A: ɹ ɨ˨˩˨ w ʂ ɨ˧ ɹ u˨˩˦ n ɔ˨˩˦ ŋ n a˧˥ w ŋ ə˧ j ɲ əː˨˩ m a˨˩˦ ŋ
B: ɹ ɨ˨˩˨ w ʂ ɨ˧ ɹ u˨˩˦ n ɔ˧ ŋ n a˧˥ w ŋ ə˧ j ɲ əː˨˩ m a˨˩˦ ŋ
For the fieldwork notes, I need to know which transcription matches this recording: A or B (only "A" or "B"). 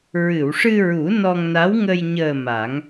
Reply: B